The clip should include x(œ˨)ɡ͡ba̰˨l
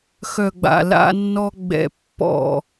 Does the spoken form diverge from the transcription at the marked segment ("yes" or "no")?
no